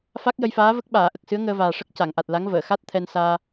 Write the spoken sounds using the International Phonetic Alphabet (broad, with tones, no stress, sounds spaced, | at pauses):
f a˦˥ k̚ j ə˧ j f aː˧˥ v ə˦˥ k̚ ɓ aː˨˩˨ ʔ ə˨˩ k̚ s ɨ˧˥ ə̯ ŋ əː˧ v aː˨˩ ʂ ə˦˥ k̚ c a˨˩˨ ŋ ʔ a˨˩ t̚ l a˧˥ ŋ v əː˨˩˨ x a˦˥ t̚ t̪ʰ ɛ˧ n s aː˧